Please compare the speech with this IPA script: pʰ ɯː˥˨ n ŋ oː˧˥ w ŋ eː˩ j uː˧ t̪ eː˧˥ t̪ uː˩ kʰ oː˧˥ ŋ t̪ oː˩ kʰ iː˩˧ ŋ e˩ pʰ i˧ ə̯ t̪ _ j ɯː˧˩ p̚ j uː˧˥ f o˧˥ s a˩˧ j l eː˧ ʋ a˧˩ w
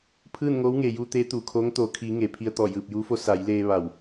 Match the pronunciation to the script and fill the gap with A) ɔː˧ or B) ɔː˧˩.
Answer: B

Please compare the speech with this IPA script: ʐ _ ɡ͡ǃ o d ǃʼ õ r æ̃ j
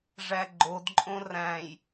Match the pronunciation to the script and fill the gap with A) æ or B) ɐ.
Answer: A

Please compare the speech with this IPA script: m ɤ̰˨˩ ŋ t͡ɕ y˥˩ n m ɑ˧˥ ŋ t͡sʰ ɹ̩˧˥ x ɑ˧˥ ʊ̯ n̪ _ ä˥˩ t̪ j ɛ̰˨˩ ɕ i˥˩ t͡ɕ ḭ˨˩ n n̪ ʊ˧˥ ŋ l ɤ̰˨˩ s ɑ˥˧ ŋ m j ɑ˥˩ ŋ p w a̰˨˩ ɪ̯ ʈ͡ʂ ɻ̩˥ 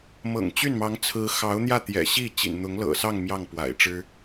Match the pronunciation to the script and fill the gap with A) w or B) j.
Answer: B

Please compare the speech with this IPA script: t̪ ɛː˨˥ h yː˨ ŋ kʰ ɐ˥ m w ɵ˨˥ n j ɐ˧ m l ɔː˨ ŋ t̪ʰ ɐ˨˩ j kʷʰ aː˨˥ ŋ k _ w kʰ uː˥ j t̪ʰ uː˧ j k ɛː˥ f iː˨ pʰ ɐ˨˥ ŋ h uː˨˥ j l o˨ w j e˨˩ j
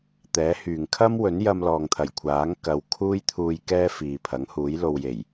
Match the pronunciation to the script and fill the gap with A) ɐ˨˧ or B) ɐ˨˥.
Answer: A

